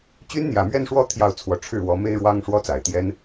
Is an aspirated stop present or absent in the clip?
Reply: present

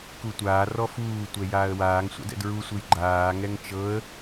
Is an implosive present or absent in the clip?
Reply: absent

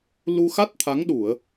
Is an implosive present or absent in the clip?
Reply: present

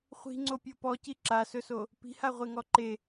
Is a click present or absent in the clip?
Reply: present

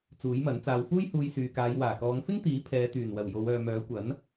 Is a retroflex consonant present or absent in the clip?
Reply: absent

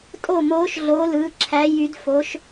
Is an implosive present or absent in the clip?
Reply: absent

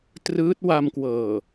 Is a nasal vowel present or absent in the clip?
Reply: absent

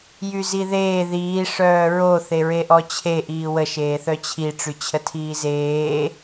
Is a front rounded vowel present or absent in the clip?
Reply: present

